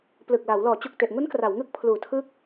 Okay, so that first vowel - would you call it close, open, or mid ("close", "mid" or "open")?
close